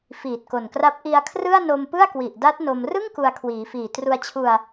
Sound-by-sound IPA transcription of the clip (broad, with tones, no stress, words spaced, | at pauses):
fiː˨˩t̚ko˨˩nkra˦˥p̚ ʔi˧a̯kʰrɯ˥˩a̯ no˧mpɯ˥˩a̯kwi˨˩ʔda˦˥t̚ no˧m rɯ˥˩ŋ ku˧a̯ kʰwiː˩˦fiː˨˩ tru˧a̯t͡ɕʰu˧a̯